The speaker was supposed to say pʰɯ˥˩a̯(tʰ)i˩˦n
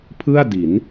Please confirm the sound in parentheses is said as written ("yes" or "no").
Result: no